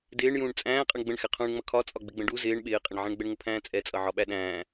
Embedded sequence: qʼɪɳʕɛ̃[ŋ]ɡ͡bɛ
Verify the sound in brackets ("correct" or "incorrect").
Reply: incorrect